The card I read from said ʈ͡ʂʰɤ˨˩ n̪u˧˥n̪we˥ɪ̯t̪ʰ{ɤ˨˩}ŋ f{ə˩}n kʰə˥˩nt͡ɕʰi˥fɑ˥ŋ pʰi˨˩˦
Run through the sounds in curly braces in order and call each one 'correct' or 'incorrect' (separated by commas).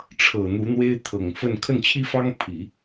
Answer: correct, incorrect